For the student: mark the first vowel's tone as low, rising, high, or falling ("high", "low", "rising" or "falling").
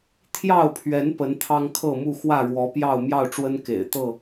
falling